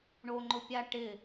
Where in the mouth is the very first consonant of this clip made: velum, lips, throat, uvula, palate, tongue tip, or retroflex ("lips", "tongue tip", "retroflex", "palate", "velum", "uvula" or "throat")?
retroflex